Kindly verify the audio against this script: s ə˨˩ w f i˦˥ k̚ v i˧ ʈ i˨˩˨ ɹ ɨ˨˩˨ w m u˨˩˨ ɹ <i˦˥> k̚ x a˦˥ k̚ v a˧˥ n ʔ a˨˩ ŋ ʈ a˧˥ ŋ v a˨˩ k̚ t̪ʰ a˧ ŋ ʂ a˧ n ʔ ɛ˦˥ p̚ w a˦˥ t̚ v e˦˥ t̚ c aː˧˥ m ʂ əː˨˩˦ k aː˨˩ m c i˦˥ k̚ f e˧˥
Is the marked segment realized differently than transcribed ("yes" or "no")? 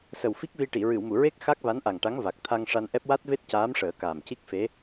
yes